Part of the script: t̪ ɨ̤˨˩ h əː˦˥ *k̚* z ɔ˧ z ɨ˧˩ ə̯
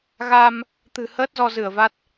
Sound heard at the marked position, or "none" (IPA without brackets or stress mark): t̚